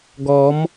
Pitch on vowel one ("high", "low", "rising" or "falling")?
rising